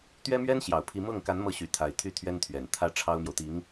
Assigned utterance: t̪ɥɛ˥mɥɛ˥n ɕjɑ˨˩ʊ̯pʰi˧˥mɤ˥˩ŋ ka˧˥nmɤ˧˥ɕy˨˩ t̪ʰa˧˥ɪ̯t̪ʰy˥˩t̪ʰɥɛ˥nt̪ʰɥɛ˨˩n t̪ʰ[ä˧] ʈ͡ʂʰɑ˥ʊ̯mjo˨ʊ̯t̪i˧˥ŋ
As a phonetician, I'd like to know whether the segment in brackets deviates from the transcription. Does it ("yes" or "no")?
yes